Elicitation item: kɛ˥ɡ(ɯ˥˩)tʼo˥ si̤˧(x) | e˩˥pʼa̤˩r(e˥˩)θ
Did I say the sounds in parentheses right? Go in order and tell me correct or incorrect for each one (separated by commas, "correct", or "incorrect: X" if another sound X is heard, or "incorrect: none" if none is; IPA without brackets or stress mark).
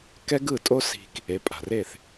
correct, incorrect: k, correct